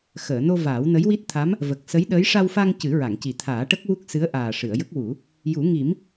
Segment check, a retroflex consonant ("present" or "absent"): present